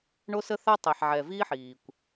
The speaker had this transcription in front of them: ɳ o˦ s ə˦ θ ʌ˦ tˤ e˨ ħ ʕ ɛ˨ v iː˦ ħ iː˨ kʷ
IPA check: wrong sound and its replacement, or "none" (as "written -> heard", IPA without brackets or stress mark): ʌ˦ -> a˦